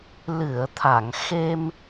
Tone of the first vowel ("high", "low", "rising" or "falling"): low